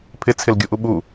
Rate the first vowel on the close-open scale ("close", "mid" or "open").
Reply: close